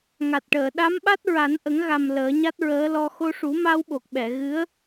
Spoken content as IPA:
ŋa˨˩t̚ʈəː˨˩˨ɗa˧˥mɓa˦˥t̚ ɹa˨˩˦nʔə˨˩˦ŋɣa˨˩m ləː˨˩˦ɲa˦˥t̚ɹəː˧˥lɔ˧ xo˧ʂu˨˩˦ma˧wɓo˨˩k̚ ɓɛ˨˩˨ɣɨ˧˥ə̯

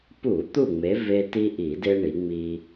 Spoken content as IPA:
pu˧˩˧ t̪u˥˨ŋ͡me˨˦ ve˦ ti˦ʔi˧˩˧de˦ ɳi˨˦ŋ͡mi˦

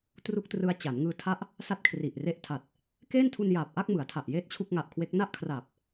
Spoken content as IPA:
tru˥˩k̚trɯ˧a̯ t͡ɕa˩˦nŋɯː˧tʰa˦˥ʔ | sa˥˩t̚kʰri˨˩ʔ re˦˥ʔtʰa˨˩t̚ | keː˥˩ntʰu˧njaː˨˩p̚ʔa˥˩k̚ mɯ˩˦a̯tʰa˨˩ʔ jeː˥˩t̚t͡ɕʰu˥˩k̚ŋa˨˩ʔkʰwe˦˥k̚ na˥˩ʔkʰraː˨˩p̚

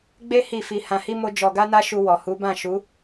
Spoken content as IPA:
ɡ͡be˦ hi˦˨fi˧ hã˧hi˦mo˦ d͡ʒɔ˧ɡa˦na˦ ʃu˧wɔ˨hu˨˦bã˦˨ ʃu˨˦

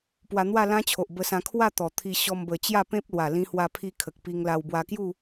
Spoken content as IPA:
pwa˧n̪wa˥˧lã˦t͡ɕʰo˨ʔ bə˧sã˧ kʰwa˥˧ t̪ɔ˨˩t̪ʰi˧ ɕɔ˧mbə˨˩ t͡ɕja˥˧pẽ˦p̚lwa˨˩ lĩ˧hwa˧pʰi˧ kʰə˨k̚pi˧ŋla˧w bwa˧kju˥˧

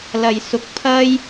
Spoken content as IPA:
lɐ˨jsʊ˨˥k̚ pʰɐ˥j

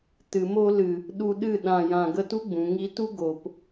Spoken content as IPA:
tɨ˨mo˧lɨ˨ | ɗu˧ɗɨ˦˨ ɗã˨jã˨ ɡə˧tu˦ɡ͡bũ˨ ŋi˧tu˦ ɡo˨p

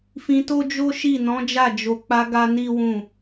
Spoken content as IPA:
fĩ˧to˦d͡ʒo˦ʃi˦˨ nɔ̃˨˦d͡ʒa˦˨ d͡ʒo˧ k͡pa˧ ɡa˦ni˦wũ˦˨

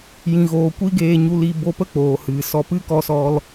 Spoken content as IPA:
jĩ˨ɣoː˨kʷi˦ ɡeː˧ɲu˧li˧ bo˧pə˦ k͡poː˨hɨ˨sɔ˧ pɨ˦kɔ˧sɔ˧l

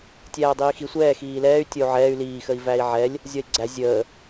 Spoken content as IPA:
tʲæːdˤiːxi sʷɛː xiːlɛːy̯ tʲʌu̯ʕɛːy̯ liː xəi̯væi̯ʕɛlʲ | zʲɒi̯ɡ͡ǀæ zʲəː

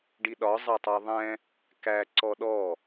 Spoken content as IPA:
ɖiɗɒ zˤɑtˤɑðˤɛ̃ | kæ ǀɔɗɔ

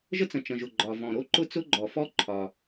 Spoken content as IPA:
ʒə˥t͡sə̃˩ t͡ʃə̃˩ʒʊ˩ ɡ͡ǃɒ˩ vɔ̃˩ ɾo˥ǃʊ˥t͡sʊ˥ɡ͡ǃɔ˩ fɔ˥ǃʰɒ˩

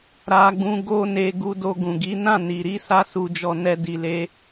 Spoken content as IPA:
ɾa˧ɡ͡bũ˧ ɡo˧ne˨ ɡu˨˦do˧ɡũ˨ɡi˨˦ nã˦˨ ni˨ɾi˨˦ sa˧su˨d͡ʒɔ˨ nɛ˧di˨le˨˦

